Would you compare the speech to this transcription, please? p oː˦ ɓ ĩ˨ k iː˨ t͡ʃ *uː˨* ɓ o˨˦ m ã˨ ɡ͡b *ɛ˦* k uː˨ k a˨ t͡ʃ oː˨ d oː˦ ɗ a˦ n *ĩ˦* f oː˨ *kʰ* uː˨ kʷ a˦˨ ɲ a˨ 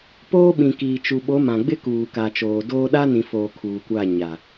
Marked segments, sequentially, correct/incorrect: incorrect: u˨, incorrect: ɪ˦, incorrect: ĩ˨, correct

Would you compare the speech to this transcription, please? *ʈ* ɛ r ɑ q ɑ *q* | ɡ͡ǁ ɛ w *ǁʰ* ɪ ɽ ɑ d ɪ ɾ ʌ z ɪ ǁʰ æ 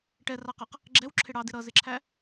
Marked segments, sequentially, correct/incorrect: correct, correct, correct

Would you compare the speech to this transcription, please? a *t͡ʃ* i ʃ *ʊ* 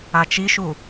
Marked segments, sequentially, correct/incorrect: correct, incorrect: u

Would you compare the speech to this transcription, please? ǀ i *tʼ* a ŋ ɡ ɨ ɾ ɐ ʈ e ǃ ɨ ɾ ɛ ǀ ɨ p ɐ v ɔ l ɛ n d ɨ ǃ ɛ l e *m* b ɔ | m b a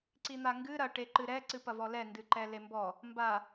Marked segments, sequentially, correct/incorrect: incorrect: n̪, correct

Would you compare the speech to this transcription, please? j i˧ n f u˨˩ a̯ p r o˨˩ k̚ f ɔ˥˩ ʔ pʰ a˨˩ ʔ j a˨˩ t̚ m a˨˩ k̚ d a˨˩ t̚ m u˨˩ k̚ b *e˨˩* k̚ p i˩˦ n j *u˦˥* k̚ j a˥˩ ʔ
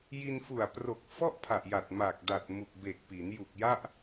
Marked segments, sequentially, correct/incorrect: correct, incorrect: u˨˩

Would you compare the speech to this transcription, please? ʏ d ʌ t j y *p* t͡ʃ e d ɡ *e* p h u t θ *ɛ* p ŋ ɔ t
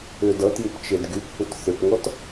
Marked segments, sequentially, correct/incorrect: correct, incorrect: y, incorrect: ʏ

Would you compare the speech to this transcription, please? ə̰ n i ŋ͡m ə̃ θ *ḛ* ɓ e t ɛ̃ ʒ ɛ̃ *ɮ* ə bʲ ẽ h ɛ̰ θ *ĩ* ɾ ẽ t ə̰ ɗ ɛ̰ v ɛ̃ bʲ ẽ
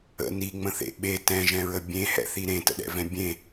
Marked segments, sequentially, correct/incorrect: correct, incorrect: ɹ, incorrect: i

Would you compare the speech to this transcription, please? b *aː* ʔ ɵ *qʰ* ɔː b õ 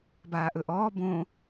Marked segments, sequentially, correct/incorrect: correct, incorrect: ʔ

